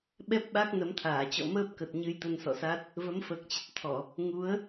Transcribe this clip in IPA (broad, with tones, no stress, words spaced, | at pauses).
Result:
ɓɛ˦˥p̚ɓa˦˥k̚ nə˨˦mt̪ʰaː˧˩ t͡ɕɔ̰˧˨məː˦˥p̚kə˨˩t̚ ɲɨ˧jt̪ə˧nsɔ̰˧˨sa˦˥t̚ | və˨˦mfəː˨˩k̚t͡ɕə˨˩t̚t̪ʰɔ˧˩˨ | ŋu˨˦ə̯